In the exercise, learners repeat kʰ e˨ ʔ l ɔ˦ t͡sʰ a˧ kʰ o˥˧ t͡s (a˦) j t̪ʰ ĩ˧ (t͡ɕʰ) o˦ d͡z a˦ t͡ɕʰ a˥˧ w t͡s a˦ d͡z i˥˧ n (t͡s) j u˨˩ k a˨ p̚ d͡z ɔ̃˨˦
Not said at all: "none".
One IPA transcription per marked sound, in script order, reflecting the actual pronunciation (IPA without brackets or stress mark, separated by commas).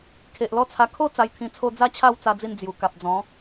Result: a˧, t͡sʰ, d͡z